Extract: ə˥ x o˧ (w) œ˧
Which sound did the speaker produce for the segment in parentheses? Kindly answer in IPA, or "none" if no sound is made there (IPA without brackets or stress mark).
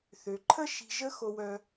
w